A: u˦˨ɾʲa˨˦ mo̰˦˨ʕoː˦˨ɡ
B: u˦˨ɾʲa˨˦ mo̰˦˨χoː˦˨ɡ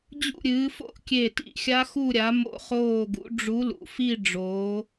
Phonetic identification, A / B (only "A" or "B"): B